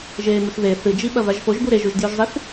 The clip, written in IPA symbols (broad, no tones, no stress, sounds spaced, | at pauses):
ʒ eː m ʉ x ð e θ ɨ d͡ʒ i ɓ ɐ v a ʒ f o ʒ b u ɾ e ʒ u ʒ d j ʉ ʒ zˤ i θ